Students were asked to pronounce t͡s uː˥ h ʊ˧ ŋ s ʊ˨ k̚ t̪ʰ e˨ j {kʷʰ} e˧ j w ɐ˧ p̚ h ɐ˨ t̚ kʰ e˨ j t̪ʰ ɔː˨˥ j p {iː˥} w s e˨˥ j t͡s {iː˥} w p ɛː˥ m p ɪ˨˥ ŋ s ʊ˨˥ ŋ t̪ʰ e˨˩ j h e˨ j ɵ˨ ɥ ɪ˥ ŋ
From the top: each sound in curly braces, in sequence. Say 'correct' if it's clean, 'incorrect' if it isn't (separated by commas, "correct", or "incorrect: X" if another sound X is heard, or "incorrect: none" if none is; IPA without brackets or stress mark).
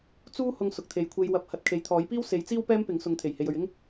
correct, correct, correct